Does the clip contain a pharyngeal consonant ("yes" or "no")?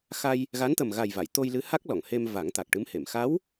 no